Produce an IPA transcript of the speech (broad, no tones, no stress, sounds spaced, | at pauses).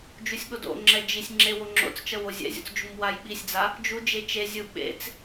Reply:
d͡ʒ u sʲ ɠ o d o̰ ŋ͡ǁ ɛ d͡ʒ i sʲ ŋ͡ǁ e w o ŋ͡ǁ o̰ t͡s t͡ʃ ʌ w o zʲ ɛ̰ zʲ o̰ t͡s d͡ʒ u m w a j ɓ i sʲ d͡z a | d͡ʒ u d͡ʒ e t͡ʃ e zʲ ɯ ɓ ḛ t͡s